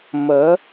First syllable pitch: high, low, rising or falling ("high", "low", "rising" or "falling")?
rising